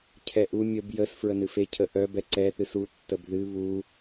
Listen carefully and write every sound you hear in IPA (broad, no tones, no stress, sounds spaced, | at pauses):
cʰ ɛ ʔ u mʲ ə b j ə s f ɹ ə n ɨ f e cʰ ə ʔ œ b ɛ ǀ ɛ θ ɨ s u tː ə b ð ɨ β u